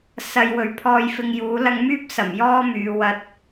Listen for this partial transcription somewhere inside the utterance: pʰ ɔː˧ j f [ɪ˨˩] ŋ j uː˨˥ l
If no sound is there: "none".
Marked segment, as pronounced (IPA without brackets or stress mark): ɪ˧